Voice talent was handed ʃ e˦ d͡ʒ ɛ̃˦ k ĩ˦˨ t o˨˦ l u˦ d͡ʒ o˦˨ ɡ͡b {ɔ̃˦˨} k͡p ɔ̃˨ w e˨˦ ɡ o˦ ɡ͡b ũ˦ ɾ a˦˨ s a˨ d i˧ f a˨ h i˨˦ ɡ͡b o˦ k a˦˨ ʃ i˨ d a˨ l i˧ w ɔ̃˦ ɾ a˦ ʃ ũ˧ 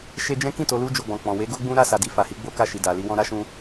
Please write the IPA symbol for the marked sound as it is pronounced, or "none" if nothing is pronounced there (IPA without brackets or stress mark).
ɔ̃˨